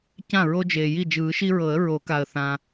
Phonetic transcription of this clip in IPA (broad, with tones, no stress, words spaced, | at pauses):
cã˥˩ ɹo˦d͡ʒeː˩ji˥˩ d͡ʒɯː˨˩˦ʃi˦ɹɤ˨˩˦ə̯ ɹo˨˩˦ka˩ə̯θã˩